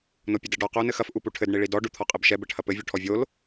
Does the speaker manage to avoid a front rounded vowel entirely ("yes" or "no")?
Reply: yes